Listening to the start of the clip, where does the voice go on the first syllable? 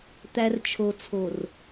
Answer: low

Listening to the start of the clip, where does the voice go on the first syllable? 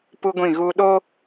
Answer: high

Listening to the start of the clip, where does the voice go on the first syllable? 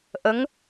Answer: rising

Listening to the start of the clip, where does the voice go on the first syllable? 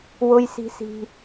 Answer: high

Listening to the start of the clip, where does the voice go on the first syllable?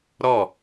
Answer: falling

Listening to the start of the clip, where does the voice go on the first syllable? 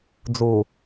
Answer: low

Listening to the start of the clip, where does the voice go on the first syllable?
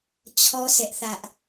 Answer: high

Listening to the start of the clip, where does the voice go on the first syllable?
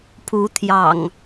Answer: rising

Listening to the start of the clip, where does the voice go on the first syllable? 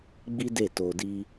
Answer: high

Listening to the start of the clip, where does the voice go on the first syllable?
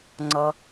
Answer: low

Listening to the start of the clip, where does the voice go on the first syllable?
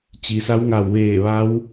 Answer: low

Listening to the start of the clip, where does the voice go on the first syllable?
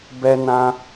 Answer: high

